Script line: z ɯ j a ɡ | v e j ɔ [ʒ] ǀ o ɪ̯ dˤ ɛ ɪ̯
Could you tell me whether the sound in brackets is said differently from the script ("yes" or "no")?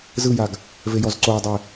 yes